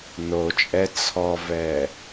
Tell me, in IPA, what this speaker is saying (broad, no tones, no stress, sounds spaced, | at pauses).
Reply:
n o t͡ʃʼ ɛ t͡sʰ ɔ v ɛ